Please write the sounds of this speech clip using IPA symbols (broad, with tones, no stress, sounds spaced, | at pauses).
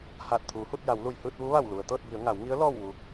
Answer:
h aː˧˩ t̚ t̪ʰ uː˩˧ h u˥˨ t̚ j a˩˧ w l u˧˩ j h ɯː˥˨ t̚ ʋ u˧˥ ʋ a˧˩ w l u˩ ə̯ t̪ ɤː˥˨ t̚ b i˩˧ ə̯ ŋ a˩˧ w ŋ i˧˥ ə̯ l ɔː˥˨ w ʋ u˧